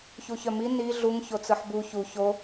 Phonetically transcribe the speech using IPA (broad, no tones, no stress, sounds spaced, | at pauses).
ç u ç œ m i n i ɮ u ŋ ç o t͡s ɯ ħ b u ç u ç o